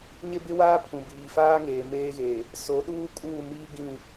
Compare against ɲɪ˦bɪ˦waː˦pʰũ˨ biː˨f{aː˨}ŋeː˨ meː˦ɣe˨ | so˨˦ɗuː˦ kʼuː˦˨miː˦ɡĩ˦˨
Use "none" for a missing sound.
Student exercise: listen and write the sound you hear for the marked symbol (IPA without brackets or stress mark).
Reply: aː˦